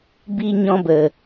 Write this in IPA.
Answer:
b i˧ ɲ ɔ̃˧ b ə˨

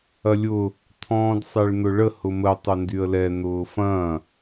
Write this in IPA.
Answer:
ɐ lʲ ʊː | t̪ʰ ɔ̃ː d sˤ e ɭ n̪ ʊ ɭ ə h ʊ m ə tˤ ʊ n d y ə̯ l ɛ n̪ ʊː f ɐ̃ː

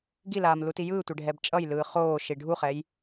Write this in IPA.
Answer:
ɡ i l aː m l u t i j ɯː tʷ e ɖʱ ɛ b t͡ʃʼ ʌ j l ɯː χ oː ʃ i ɖʱ u χ ɛ j

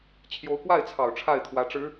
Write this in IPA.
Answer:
t͡ɕʰ j o˧˥ ʊ̯ k w a˥˩ ɪ̯ t͡sʰ ɑ˨˩ ʊ̯ ʈ͡ʂʰ a˥˩ ɪ̯ t̪ʰ w ä˧˥ ʈ͡ʂ ɻ̩˧˥

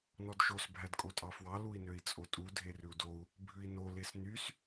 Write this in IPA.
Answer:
n ɔ d ʃ o s bʱ æ d kʼ o tʼ ɑ f w ɑ l u i̯ n ø i̯ t͡sʼ o tʼ u dʱ e r ʉ u̯ d o u̯ | bʱ ʉ i̯ n o l e s n y s

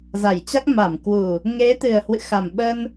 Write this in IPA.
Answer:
z a˧˩ j t͡ɕ a˦˥ k̚ m a˧˩ m k w u˨˩ | ŋ e˨˦ t̪ ɨ˨˩ ə̯ h w ɨ̰˧˨ x a˨˩ m ɓ ə˧ n

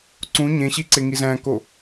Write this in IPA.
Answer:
ǀ ũ ɲ ẽ ɕ i ǀ e ŋ i z æ̃ k o

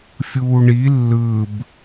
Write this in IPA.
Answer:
fʲ uː ɳ i lː ɯ b

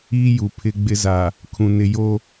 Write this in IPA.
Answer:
iː˦ j u˨ pʰ ɪ˦ ɡ͡b ɪ˦ z a˨ | kʰ ũ˨ n ɪ˨ j o˦

